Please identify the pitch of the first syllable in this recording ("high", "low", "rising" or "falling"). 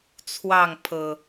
falling